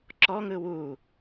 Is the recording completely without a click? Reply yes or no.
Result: no